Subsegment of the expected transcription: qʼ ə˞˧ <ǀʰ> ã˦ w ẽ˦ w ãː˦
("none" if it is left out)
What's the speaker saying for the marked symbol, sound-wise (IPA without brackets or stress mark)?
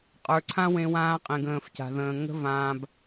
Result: ǀʰ